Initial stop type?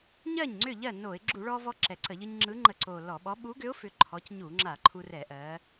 click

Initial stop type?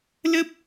plain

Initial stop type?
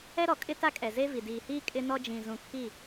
ejective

